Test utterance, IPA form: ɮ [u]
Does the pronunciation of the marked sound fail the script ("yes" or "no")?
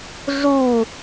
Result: no